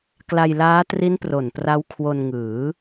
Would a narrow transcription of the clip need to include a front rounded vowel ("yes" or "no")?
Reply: no